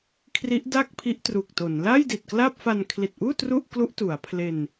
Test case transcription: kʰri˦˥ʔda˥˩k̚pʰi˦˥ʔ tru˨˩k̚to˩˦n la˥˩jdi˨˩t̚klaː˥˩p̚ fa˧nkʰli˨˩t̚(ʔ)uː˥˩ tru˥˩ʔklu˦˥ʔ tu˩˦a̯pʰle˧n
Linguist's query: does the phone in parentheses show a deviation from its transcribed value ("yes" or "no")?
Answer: no